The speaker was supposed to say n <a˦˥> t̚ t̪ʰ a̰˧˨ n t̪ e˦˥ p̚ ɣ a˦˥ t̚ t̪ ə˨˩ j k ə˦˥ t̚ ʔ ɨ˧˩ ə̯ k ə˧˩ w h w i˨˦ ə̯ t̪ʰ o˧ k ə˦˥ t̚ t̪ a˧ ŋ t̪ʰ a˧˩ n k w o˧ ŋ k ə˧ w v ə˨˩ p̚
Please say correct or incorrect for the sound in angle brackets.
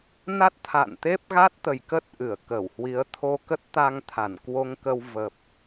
correct